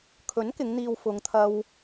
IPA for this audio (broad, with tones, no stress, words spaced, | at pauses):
kʰɵ˨˥nkɪ˨˧ŋn̪iː˨w fʊ˨˧ŋt̪ʰɐ˧w